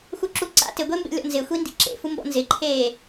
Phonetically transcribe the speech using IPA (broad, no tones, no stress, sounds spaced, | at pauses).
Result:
x u ǁ u ǀ a̰ t ɪ ɡʷ e m b ḛ lʲ ɔ̰ n z ɪ xʷ i n d ḭ ǁ ḛ f u m b ɔ̰ n z ɪ ǃʰ eː